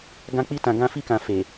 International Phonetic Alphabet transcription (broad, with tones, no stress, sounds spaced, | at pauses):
ɡ ã˧ k͡p i˧ t ã˨ ɡ ã˧ f i˧ k ã˨ f e˨